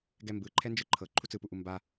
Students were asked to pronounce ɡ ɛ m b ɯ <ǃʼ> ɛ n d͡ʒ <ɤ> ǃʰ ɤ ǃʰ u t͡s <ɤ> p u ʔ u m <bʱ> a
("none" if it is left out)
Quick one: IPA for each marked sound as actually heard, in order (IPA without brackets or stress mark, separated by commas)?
ǃʰ, ɯ, ɯ, b